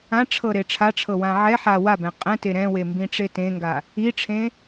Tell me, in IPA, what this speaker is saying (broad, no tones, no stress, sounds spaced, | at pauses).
ã ʈ͡ʂʰ ɤ ɾ e ʈ͡ʂʰ a ʈ͡ʂʰ ɤ w ã ʕ ɛ ħ a w a b ɛ̃ qʼ ɛ̃ t e ɾ ɛ̃ w e m b ĩ ʈ͡ʂ e t ẽ ŋ ɡ a | i ʈ͡ʂʰ ẽ